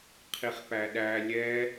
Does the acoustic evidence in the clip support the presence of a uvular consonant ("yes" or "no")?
yes